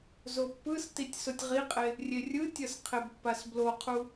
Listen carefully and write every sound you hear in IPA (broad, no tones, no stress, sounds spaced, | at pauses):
z o pː ɯ s t i tʲ s o tʲ ʁ i qʼ e | rʲ e rʲ ɯ tʲ ʌ s qʰ e b pː a s b l o qʰ u